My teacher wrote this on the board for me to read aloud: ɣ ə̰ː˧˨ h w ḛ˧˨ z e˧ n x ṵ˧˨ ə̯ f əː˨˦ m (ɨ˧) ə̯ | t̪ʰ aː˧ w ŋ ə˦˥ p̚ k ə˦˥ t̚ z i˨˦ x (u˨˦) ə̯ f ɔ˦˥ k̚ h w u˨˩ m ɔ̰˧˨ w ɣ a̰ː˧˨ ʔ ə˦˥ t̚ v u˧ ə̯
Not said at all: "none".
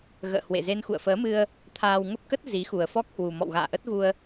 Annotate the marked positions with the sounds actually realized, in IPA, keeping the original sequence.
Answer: ɨ˧, u˨˩

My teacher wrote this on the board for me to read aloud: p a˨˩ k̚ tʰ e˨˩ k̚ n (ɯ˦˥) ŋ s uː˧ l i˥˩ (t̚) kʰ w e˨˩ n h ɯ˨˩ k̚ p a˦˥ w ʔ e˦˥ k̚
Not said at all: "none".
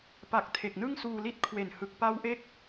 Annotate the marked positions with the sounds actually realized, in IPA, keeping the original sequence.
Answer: ɯ˥˩, t̚

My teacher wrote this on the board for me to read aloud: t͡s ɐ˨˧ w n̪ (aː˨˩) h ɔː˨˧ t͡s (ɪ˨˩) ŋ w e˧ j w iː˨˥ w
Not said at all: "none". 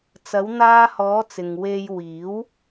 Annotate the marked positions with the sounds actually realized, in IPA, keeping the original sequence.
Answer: aː˧, ɪ˨

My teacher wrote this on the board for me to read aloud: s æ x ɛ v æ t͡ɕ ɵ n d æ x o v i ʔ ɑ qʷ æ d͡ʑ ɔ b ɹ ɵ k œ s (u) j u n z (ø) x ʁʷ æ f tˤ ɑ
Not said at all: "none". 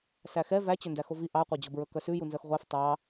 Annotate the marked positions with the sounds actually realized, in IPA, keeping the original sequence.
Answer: ʉ, œ

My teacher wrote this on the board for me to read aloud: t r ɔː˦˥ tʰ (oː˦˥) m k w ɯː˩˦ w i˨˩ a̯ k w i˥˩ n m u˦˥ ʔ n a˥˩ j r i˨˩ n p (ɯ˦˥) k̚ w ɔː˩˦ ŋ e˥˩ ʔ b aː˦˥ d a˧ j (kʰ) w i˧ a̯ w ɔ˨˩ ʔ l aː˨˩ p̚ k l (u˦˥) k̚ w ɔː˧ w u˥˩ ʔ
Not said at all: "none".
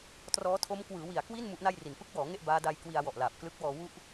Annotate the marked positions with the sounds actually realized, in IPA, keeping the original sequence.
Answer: o˦˥, ɯ˦˥, k, ɯ˦˥

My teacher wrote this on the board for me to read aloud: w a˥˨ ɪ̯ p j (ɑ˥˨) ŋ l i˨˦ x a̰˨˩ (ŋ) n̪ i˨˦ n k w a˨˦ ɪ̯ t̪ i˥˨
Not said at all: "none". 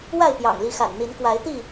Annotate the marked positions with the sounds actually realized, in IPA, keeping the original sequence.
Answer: ɑ̰˨˩, n

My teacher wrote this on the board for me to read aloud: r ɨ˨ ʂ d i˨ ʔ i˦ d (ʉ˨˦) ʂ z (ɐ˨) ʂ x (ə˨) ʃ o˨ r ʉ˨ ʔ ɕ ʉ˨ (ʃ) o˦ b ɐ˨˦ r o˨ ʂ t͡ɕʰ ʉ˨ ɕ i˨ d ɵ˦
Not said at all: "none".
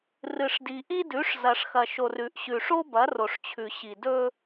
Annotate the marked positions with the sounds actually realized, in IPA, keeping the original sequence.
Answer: ʉ˨˦, ɐ˨, ɐ˨, ʂ

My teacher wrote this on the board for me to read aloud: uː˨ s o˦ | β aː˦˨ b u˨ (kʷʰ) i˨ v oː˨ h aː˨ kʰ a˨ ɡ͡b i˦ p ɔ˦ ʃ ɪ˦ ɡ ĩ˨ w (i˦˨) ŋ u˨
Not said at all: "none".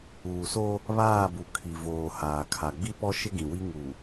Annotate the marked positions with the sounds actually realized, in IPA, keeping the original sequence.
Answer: kʰ, i˦

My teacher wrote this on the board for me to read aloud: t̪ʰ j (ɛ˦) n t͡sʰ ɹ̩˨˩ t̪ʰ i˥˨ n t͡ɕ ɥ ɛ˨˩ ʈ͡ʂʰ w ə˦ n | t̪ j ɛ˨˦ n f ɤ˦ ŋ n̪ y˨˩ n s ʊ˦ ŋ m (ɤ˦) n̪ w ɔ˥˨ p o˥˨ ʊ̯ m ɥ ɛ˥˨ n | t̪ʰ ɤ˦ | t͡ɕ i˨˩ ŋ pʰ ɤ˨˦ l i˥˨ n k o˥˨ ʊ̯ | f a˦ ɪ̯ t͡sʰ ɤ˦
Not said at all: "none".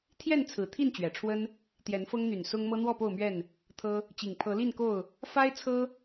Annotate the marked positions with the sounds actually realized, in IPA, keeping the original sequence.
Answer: ɛ˥˨, ɤ˦

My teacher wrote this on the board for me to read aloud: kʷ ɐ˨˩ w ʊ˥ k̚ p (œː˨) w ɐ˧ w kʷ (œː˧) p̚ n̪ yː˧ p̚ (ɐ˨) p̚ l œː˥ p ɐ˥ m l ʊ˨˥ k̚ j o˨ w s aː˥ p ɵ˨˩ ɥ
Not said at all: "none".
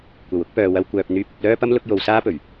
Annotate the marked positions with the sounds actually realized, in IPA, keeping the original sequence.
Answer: œː˨, œː˨, ɐ˧

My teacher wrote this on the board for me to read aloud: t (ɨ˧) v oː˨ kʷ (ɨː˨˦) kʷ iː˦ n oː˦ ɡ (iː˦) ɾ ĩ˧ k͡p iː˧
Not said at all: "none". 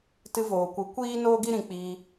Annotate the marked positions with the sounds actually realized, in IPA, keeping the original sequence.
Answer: ɨ˧, ɨ˨˦, i˦

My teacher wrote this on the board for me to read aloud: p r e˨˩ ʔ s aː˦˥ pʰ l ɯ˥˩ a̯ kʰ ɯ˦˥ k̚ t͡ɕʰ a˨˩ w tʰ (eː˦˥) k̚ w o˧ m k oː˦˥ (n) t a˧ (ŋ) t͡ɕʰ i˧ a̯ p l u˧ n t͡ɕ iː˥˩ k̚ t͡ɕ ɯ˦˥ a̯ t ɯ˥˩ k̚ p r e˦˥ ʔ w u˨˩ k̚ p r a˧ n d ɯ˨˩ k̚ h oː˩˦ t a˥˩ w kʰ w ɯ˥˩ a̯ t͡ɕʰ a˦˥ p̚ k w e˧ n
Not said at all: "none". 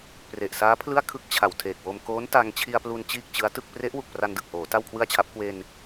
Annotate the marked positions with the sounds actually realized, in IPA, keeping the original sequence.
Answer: eː˨˩, n, ŋ

